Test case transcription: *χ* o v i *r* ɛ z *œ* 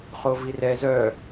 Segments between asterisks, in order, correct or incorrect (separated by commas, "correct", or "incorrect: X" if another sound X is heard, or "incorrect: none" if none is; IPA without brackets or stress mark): correct, correct, correct